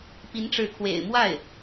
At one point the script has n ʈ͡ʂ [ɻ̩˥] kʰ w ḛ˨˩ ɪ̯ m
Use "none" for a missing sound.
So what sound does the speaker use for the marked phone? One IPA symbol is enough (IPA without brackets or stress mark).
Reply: ɻ̩˧˥